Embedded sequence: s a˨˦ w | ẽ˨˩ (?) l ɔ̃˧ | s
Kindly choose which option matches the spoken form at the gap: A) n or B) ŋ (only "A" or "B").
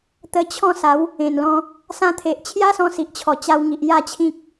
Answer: A